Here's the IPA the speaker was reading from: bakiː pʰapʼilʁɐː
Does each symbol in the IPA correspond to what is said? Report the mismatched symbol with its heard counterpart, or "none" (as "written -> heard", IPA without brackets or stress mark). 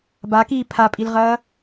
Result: none